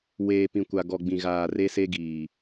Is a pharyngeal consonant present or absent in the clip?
absent